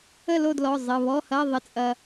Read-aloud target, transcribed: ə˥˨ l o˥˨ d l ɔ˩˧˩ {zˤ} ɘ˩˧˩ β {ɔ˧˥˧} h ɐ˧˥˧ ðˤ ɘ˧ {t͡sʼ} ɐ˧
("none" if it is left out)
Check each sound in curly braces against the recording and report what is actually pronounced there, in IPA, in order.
zˤ, ɔ˧˥˧, t͡sʼ

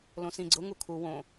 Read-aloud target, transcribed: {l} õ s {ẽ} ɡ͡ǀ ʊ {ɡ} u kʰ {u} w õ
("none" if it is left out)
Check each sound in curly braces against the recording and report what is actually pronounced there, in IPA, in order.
l, ĩ, ŋ, u

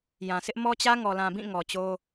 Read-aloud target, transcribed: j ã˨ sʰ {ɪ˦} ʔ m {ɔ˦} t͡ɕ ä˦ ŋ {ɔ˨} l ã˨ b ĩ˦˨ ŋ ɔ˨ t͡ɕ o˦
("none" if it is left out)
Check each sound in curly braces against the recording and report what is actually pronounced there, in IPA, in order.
ɪ˦, ɔ˦, ɔ˨

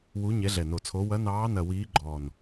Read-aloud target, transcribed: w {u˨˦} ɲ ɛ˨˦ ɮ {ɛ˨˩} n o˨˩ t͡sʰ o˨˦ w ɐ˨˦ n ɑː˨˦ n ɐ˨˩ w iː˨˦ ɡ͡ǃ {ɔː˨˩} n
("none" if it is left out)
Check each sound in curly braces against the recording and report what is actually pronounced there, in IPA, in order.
u˨˦, ɛ˨˩, ɔː˨˩

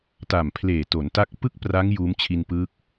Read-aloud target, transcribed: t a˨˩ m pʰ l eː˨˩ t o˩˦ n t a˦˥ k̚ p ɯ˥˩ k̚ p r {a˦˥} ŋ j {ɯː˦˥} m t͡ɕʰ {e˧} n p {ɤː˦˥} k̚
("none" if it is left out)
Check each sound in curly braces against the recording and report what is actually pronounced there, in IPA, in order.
a˦˥, uː˦˥, i˧, ɯː˦˥

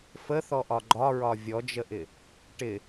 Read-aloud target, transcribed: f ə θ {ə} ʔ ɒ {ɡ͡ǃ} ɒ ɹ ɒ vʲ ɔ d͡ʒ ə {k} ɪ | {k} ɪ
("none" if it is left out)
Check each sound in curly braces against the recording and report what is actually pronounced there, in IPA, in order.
ɔ, ɡ͡ǃ, ʔ, ʈ

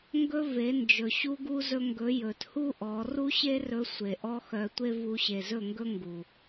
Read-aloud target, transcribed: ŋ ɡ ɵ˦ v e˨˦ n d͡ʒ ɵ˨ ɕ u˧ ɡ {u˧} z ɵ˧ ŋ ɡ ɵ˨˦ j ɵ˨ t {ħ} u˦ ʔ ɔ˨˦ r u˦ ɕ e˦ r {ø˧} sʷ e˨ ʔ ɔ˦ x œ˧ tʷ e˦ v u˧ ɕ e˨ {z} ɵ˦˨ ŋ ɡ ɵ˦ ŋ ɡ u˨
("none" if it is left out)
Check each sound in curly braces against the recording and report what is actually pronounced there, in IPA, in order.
u˧, h, ɵ˧, z

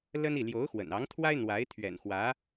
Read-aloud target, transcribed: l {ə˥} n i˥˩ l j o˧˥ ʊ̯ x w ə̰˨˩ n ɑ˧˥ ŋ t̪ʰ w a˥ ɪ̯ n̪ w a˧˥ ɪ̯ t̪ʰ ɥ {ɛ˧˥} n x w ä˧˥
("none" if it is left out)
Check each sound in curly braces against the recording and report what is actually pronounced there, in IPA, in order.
ə˥, ɛ̰˨˩

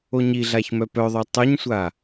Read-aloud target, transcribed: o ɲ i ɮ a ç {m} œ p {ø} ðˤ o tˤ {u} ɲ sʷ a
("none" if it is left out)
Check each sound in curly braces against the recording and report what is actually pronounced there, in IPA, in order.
m, œ, ø

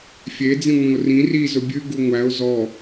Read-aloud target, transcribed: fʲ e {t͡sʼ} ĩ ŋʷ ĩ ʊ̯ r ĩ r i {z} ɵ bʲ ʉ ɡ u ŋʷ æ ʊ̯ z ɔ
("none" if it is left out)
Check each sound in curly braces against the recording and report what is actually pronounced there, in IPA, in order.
d͡z, z

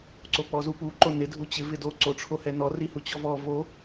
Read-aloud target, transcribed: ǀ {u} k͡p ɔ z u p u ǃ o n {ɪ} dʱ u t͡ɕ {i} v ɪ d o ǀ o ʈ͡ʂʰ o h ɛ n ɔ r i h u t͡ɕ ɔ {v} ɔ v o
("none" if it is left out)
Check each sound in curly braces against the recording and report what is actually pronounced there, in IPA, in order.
o, ɪ, ɪ, v

